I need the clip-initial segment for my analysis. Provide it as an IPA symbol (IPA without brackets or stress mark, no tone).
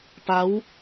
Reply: p